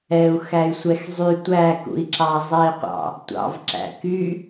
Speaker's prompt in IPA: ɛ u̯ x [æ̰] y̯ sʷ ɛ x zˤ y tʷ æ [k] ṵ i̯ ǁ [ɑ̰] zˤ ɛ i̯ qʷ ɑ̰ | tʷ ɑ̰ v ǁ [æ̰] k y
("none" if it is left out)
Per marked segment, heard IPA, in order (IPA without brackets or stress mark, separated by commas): æ, k, ɑ, æ̰